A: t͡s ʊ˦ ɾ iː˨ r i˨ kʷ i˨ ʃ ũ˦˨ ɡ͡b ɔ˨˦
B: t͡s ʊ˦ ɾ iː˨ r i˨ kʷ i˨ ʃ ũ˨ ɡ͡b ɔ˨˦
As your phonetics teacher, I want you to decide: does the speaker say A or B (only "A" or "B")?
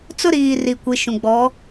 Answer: B